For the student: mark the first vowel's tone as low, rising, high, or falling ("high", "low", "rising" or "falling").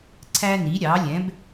high